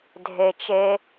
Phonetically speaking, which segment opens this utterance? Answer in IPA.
dʱ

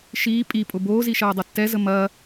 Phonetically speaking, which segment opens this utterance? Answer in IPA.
ʃ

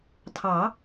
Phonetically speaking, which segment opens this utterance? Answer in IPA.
tʰ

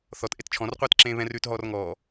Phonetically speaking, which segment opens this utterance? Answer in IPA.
θ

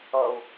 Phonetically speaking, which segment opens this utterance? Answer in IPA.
ʌ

